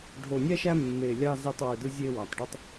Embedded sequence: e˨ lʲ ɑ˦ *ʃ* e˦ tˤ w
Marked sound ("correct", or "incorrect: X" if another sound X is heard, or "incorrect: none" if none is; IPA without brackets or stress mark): incorrect: z